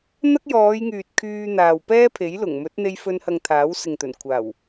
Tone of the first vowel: high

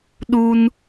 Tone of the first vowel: high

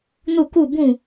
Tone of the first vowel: falling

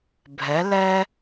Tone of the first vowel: rising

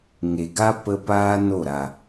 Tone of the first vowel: low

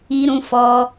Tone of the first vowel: high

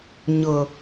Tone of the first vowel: low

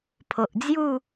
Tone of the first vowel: low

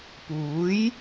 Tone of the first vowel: rising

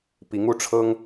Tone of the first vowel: rising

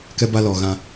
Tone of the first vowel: high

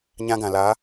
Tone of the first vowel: high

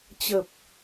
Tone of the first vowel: low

